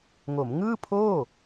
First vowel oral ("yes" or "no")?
yes